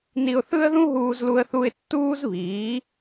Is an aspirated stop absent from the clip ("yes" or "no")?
yes